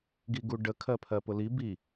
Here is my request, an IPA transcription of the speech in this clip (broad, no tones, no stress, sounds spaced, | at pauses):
ɡ i ɡ u ɖ ə kʰ ɜ pʰ ɜ p ʊ l i b i